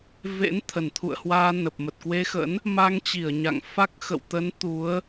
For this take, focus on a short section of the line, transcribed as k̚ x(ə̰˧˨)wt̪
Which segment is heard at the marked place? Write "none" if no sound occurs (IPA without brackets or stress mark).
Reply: ə̰˧˨